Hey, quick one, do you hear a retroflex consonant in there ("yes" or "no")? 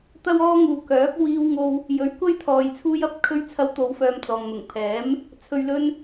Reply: no